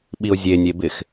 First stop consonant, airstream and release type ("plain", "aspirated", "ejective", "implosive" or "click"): implosive